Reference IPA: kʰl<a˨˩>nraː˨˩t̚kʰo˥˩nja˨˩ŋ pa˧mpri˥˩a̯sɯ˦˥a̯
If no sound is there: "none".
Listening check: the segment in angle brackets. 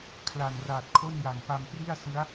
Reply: a˨˩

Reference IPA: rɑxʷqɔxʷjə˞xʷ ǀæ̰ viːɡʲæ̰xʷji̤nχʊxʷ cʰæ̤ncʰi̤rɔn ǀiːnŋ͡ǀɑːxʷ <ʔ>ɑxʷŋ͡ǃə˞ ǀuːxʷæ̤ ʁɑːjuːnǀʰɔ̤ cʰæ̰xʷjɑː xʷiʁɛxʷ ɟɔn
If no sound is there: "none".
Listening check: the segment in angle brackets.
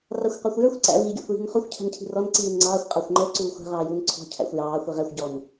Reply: qʼ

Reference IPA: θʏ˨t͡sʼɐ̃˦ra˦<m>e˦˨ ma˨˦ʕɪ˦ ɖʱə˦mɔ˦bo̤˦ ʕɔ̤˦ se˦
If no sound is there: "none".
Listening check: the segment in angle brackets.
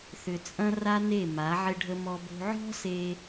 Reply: n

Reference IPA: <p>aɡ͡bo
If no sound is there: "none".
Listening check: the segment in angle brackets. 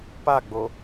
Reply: p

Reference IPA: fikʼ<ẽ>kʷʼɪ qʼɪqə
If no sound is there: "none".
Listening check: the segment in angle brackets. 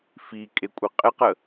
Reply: e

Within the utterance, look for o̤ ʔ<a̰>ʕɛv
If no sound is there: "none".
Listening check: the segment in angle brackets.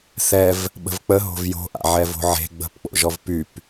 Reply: a̰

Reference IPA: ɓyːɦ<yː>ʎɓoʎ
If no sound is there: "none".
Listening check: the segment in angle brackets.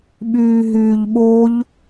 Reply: yː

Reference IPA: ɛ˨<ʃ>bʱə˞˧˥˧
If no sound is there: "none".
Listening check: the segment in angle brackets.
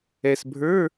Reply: s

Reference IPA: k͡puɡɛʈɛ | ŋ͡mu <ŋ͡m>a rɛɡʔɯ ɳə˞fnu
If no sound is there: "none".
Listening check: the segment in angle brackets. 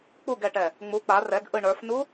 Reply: k͡p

